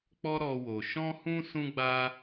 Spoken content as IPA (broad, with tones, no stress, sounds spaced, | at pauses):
k͡p ɔ˧ ɾ ɔ˧ w o˨ ʃ ɔ̃˧ h ũ˧ s ũ˧ ɡ͡b a˧